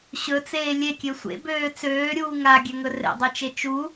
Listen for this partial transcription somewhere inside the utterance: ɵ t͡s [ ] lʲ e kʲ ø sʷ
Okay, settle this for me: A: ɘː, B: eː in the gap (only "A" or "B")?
B